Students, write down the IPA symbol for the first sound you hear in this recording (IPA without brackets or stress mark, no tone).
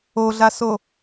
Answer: o